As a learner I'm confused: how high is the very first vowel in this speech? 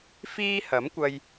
high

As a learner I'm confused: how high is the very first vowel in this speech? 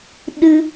high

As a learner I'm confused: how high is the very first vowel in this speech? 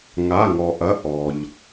low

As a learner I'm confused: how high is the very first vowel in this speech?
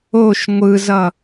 mid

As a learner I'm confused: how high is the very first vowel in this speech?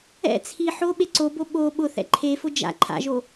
mid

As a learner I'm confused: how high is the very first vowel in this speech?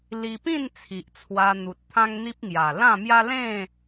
high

